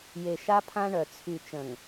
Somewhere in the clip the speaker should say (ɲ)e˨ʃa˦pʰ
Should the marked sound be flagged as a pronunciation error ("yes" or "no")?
yes